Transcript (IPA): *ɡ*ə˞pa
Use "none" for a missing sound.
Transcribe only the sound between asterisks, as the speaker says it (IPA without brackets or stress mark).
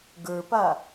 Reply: ɡ